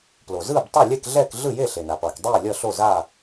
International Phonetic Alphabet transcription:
p l o˩ z ɯː˥˨ b tˤ e˥˨ lʲ ɛ˥˨ k ɮ ɛː˥˨ k ɮ ɯ˥˨ j e˥˨ ɬ e˩ n a˩ p ʌː˩ k dˤ iː˥˨ lʲ ʌ˥˨ ɬ o˥˨ z a˥˨

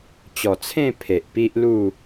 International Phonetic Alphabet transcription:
t͡ɕ ɔ˨˩ t͡sʰ ẽ˥˧ pʰ e˨ ʔ p i˦ ʔ l u˥˧

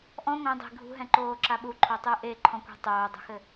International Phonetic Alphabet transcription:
ʔ ɔ̃ ŋʷ ẽ dˤ e̤ ɡʱ ṳ ɦ ɛ̃ ǃ oː ǁ a ɓ u ǃʰ o tˤ ɨː ʔ e ǃʰ ɔ̃ kʷ e̤ tˤ oː dˤ o̤ x ɘ

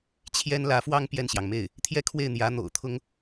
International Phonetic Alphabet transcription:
t͡ɕʰ j ɛ˥ n l ä˧˥ f w ɑ˥ ŋ p j ɛ˥˩ n ɕ j ɑ˩ ŋ m e˥˩ ɪ̯ | t̪ʰ j ɛ˥˧ kʰ w e˥˩ ɪ̯ n̪ j ä˧˥ n̪ o̰˨˩ ʊ̯ t̪ʰ ʊ˥ ŋ

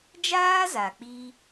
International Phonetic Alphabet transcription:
d͡ʒ aː˦ z a˨ k͡p i˧

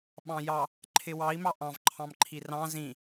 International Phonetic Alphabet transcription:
ɓ ɑ̃ j ɑ | ǃʰ ɪ w ɑ i̯ m ɑ ʔ ɑ̃ v ǃʰ ɑ̃ m ǃʰ i r ɑ̃ z ĩ

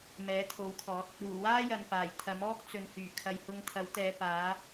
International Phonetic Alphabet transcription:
m ɛː˨˥ t̪ʰ o˨˥ w kʰ ɔː˨˥ t̚ | uː˨˩ w aː˥ j ɐ˨ n p aː˨˩ j t̪ʰ ɐ˨˥ m ɔː˥ k̚ t͡s ɵ˨ n h yː˨˩ kʰ ɐ˨ j h ʊ˧ ŋ t̪ʰ ɐ˨˥ w t̪ ɛː˨˧ p aː˨˥

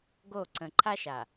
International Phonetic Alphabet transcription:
ɡ o˦˨ ǀ ə̃˨ ǃʰ a˦ ʃ a˨

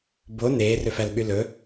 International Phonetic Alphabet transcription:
b o n eː r ø f æ l ɓ y l ɵ

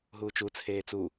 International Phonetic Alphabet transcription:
ɦ uː t͡ʃ u t͡sʰ eː t͡s u

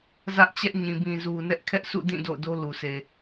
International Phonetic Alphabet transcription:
z ä˦ ʔ t͡ɕ ɛ˦ ʔ ɲ ĩ˨ b ĩ˨ z u˨ n ɛ˦ ʔ kʰ ɛ˦ ʔ sʰ ṵ˦˨ d ĩ˦˨ d o̰˦˨ ʊ̯ d o˦ l u˨ s e˨

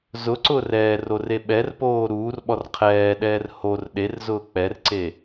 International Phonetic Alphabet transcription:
z ʊ ǀ ʊː r ɛː r o r e ɓ ɛ r p oː ɾ uː r ɓ ɔ r qʰ ɛː ɗ ɛː r h o r ɗ e r z ʊː k͡p ɛ r ǀ e

